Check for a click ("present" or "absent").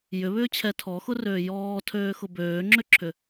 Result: present